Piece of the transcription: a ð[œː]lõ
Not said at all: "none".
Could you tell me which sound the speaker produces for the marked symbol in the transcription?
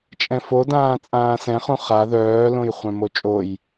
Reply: œː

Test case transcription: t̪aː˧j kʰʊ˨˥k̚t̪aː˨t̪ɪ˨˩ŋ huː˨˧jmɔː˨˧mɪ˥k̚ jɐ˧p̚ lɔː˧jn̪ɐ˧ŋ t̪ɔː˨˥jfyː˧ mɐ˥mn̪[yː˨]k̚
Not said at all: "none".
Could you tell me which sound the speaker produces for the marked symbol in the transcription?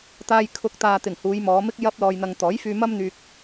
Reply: yː˧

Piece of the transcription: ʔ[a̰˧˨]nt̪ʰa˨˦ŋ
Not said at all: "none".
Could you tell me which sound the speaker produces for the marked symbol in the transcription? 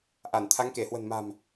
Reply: a˧˩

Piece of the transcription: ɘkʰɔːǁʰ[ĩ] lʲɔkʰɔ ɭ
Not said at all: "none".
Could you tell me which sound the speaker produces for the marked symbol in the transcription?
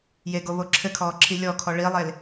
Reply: i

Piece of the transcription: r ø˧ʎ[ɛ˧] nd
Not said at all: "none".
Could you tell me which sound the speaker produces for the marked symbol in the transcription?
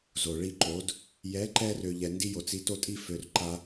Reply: ɛ˧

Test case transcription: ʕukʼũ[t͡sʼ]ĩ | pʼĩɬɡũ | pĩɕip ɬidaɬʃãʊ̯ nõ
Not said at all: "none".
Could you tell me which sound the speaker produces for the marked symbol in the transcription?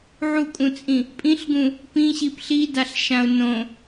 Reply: t͡sʼ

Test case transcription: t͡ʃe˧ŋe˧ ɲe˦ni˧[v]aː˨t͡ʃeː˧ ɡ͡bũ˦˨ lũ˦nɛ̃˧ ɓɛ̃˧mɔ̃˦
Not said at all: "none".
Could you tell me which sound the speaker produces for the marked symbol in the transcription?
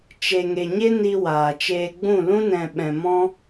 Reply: w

